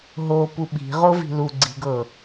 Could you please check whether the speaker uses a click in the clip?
yes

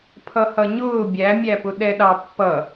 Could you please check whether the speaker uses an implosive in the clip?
yes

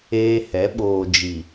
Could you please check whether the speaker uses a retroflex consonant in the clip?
no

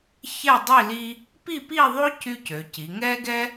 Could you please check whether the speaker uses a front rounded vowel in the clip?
yes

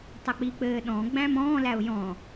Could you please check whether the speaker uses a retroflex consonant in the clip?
no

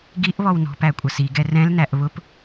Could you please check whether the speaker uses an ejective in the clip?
yes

